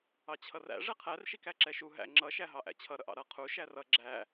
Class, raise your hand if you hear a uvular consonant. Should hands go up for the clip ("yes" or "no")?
yes